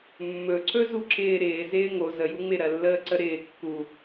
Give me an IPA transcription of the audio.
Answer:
mː ɵ ǀ ɵ z u ǁ ɪː ɾ ɪː z ɪː ŋ o z ə j u ŋ͡m ɪ ɾ ɜ lː əː ǀ ə ɾ ɪː kː u

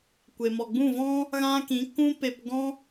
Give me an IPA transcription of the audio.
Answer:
kʷ e˨ m ɔ˨ ɡ͡b ũ˦˨ v ɔ̃˦ | ɣ ã˧ k ĩ˨˦ k ũ˦ p e˧ p ɡ ɔ̃˦

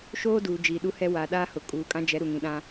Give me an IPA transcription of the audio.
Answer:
ʃ oː˦ d uː˨ d͡ʒ iː˨ ɗ u˦ h ɛ˦ w aː˨ ɗ aː˦ h ʊ˨ kʼ uː˨ kʼ ã˦ d͡ʒ ɛ˨˦ ɾ u˨ ŋ ĩ˨ ɗ ã˦

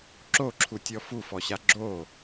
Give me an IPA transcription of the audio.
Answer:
ǁ o ǁʰ u tʲ ɔ f u f ɔ ɕ a ɡ͡ǁ o

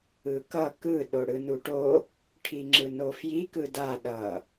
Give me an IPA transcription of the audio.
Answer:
ɯ k ʌ k ɯ ɗ o ɽ ɯ n u ʈ o | ʈʰ i ŋ͡ǁ ɯ n o f j i k ɯ d a ɗ ʌ

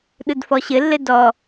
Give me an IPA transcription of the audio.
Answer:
ɗ ɯ d f ɔ ɕ ɘ lː ɘ d ɔ

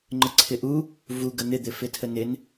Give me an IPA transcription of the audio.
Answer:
ŋ͡ǃ ə ǀʰ ɪ ʔ u | v u ɡ ə n̪ ɪ d̪ ɪ f ɪ tʰ ə n ɪ n

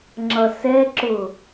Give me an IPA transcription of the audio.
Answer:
ŋ͡ǁ ʌ s ɛ ǁ ʊ

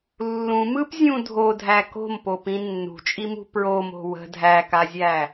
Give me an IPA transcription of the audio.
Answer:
lː ũ m ɯ p zʲ ũ dʱ o dʱ æ k o̤ m p o p ĩ nː ṳ t͡ʃʼ i m ṳ p ɹ o m o̤ w ə̤ dʱ æ k a zʲ æ

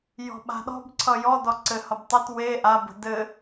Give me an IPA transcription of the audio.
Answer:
j ɔ̤ ɓ a̤ ɗ ɔ̤ b ǀʰ ʌ j ɔ d ɔ ǀ ɘ h ʌ b tˤ ɘ t w e ʔ a b ə̤ d ɘ

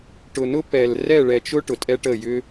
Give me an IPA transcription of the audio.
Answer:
ʈ ʊ˨ n ʊ˦ p ɛ˨ l r ɛ˦˨ ɭ ɛ˨ t͡ʃ ʊ˦ ʈ ʊ˨ tʼ ɛ˦ ʈ ə˦˨ j ʏ˦

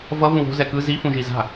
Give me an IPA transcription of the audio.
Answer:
v ʌ v ũ w o̤ z ɛ k ɯ z i f ũ ʒ i z a̤

